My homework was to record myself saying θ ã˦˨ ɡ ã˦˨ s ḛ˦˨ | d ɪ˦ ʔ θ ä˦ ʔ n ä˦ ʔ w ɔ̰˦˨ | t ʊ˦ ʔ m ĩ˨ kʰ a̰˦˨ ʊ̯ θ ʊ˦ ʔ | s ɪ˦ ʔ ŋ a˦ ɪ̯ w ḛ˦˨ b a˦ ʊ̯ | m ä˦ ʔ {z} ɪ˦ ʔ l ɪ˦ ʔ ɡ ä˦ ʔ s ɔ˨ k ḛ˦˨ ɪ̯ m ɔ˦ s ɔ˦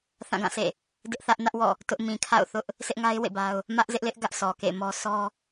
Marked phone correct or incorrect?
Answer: correct